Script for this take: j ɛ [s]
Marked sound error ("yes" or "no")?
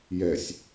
yes